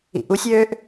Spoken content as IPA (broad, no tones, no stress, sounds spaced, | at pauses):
ḭ ʔ u sʲ øː ʔ